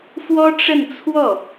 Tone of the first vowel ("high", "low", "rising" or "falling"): high